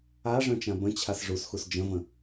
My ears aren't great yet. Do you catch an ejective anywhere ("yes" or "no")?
no